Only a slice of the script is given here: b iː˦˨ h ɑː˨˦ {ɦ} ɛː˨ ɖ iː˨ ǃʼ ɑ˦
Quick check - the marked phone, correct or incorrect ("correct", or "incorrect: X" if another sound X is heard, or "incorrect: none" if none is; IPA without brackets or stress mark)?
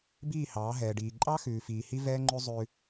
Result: correct